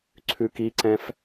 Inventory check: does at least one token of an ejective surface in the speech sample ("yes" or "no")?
no